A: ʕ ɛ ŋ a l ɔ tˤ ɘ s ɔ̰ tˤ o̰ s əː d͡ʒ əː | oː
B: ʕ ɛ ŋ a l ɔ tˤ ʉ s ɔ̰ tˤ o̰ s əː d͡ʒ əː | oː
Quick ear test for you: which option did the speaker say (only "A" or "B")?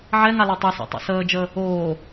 B